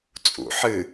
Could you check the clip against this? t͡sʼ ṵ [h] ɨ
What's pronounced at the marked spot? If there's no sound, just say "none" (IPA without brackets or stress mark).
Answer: ħ